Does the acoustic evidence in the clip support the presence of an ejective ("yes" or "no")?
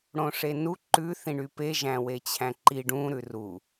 no